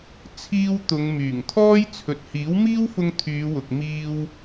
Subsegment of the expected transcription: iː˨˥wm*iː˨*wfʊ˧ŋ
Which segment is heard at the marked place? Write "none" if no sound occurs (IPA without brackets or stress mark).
iː˥